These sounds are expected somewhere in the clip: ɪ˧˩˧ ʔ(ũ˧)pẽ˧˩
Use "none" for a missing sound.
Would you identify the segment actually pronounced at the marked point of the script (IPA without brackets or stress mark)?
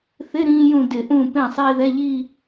ũ˧˩